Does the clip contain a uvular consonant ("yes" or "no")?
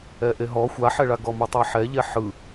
no